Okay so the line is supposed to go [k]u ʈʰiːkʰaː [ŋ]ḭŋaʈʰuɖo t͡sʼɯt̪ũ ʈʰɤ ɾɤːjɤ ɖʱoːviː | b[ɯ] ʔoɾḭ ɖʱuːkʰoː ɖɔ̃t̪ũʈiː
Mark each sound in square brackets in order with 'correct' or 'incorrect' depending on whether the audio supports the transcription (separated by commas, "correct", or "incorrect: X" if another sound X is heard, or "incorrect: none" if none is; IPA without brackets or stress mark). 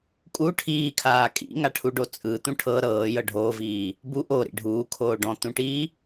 incorrect: kʼ, incorrect: kʼ, incorrect: u